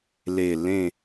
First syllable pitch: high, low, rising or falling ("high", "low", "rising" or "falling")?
low